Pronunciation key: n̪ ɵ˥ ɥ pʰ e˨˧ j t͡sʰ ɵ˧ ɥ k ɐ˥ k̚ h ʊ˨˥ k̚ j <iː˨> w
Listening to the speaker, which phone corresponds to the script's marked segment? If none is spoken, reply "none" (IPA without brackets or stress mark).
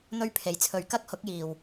iː˨